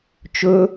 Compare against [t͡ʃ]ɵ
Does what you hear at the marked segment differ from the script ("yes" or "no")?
no